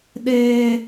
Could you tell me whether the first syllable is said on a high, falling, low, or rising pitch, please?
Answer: high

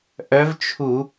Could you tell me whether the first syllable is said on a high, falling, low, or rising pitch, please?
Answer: rising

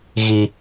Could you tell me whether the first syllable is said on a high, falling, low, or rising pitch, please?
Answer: high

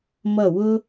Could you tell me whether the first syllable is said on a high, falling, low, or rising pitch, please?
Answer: falling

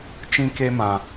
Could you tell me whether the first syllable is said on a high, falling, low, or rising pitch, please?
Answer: high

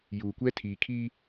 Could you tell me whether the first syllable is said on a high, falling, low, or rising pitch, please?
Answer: low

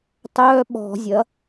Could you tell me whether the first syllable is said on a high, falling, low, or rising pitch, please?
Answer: high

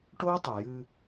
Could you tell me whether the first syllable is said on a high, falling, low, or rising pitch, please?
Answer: high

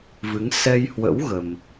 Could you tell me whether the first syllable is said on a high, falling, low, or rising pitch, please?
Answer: rising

